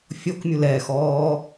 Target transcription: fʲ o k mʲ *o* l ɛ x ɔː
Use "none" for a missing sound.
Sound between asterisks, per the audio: u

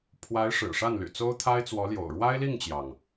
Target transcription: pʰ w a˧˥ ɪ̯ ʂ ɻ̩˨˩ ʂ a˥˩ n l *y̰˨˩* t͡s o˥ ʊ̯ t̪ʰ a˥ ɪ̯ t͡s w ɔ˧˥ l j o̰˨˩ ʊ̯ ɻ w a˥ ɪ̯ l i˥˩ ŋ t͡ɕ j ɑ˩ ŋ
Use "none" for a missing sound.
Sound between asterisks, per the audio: y̰˨˩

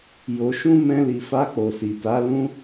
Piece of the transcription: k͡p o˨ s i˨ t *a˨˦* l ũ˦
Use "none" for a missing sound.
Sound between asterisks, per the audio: a˨˦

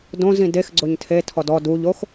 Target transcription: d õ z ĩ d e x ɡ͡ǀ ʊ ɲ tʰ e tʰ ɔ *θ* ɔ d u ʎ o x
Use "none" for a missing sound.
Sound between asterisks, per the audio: d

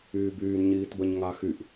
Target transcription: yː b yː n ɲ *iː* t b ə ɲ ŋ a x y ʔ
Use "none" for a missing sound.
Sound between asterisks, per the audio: iː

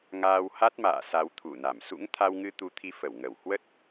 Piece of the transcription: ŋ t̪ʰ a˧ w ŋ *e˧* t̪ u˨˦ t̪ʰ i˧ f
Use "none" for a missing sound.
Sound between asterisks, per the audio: ɨ˧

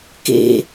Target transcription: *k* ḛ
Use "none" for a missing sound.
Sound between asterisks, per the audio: k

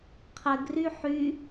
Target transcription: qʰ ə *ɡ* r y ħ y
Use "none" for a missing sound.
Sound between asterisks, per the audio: ɡ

